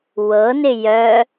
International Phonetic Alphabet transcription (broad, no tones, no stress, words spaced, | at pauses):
wɤnɪ jœ